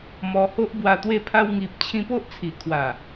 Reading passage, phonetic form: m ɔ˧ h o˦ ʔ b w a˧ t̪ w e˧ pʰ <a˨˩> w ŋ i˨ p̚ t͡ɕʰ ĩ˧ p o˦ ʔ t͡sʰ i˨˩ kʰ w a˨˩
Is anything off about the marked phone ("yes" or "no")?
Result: yes